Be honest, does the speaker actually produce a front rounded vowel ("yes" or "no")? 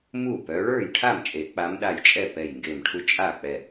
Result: yes